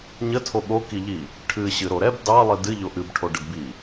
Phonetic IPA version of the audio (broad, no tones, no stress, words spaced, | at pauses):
ɲətʰo ɠokiʎi | ʈʰɨ ɕɨɾoɾɛb dɑlˠi dɨ ʎoʔɨbʈʰo ɖədbi